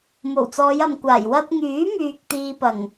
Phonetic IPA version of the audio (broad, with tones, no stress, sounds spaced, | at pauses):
m o˨˩ w t͡s ɔː˨˧ j ɐ˨ m kʷ aː˨˩ j w ɐ˧ t̚ ŋ yː˨˥ m yː˨ k̚ t̪ iː˧ p ɐ˨˩ ŋ